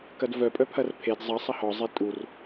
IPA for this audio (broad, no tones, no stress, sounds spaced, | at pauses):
k ɐ d v œ pʼ œ pʰ ɐ r pʰ e d zˤ ɐ sˤ ɐ h ɔ zˤ e tʼ u r